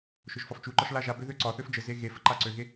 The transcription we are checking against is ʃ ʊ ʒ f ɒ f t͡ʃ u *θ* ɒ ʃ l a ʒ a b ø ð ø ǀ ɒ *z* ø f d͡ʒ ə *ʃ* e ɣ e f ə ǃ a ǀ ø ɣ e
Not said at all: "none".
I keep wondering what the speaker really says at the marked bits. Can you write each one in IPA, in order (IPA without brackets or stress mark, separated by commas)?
ǃ, θ, z